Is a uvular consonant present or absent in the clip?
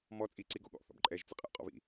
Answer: present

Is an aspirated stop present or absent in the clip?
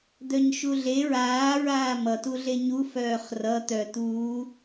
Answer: absent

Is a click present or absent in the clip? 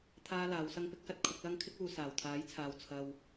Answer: absent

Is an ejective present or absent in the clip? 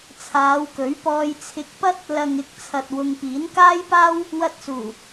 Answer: absent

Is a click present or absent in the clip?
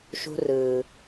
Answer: absent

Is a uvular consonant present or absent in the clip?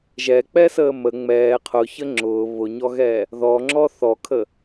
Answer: present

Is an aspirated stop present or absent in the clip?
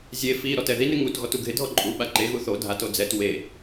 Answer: absent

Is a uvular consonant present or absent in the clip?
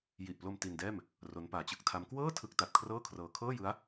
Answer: absent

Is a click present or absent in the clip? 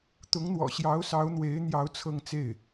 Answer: absent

